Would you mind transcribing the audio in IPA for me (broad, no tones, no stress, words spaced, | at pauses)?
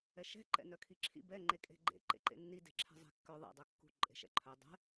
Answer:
ɛʃɛ̤ ǃɛ̰nœkʰiǁʰḭ bɛ ŋ͡ǃekʼe̤ɡ͡ǃḛ ǃḛǃḛnːi de̤ǁʰɛ̤zˤe̤kːœ ðˤḛ dˤœkːṳ ǃʼe̤ʃɛ̰ǃʰœ dˤɛ̤